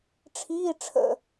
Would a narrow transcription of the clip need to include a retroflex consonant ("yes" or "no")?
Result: yes